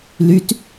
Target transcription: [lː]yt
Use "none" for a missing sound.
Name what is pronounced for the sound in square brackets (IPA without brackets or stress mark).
l